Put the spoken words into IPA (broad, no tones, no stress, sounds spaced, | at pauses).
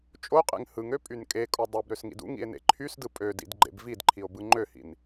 t͡ʃʼ o qʼ ḛ ŋ h ɯ ŋ ø pʼ y n kʼ e kʼ o dˤ ɯ b ɾ ø s ŋ ḭ d ṵ ŋ ḭ e̯ n ḛ ǃʰ y s d ɯ pʼ ø d ḭ d ɡ͡ǃ ḛ b v i d ǃʰ i o̯ b ɯ ŋ͡ǃ ø h ḭ n